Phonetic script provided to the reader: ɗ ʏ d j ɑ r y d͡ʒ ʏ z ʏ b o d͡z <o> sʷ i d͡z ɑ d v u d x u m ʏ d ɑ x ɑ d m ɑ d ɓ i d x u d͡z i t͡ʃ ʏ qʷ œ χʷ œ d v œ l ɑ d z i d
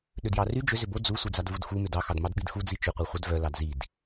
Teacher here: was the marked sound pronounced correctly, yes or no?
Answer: no